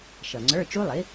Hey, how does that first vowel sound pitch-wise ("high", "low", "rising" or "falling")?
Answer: low